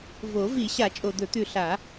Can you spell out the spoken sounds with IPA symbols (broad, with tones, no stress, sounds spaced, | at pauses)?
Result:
v o˨˩˦ v i˨˩˦ ɕ a˨˩˦ t͡ʃʼ o˨˩ d̪ ɵ˨˩˦ t̪ ʉ˨˩ ɬ a˨˩˦